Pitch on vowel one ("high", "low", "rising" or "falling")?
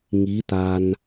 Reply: rising